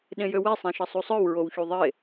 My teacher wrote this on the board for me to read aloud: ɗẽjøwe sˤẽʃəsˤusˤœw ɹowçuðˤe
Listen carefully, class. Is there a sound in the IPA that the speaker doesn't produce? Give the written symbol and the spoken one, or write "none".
none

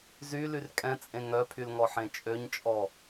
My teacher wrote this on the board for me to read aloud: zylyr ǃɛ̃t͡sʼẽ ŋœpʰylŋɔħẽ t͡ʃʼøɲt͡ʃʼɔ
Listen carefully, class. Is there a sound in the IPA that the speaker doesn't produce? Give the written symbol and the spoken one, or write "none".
ǃ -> kʼ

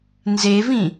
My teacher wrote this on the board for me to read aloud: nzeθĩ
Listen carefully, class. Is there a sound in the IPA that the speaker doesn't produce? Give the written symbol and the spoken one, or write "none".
θ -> v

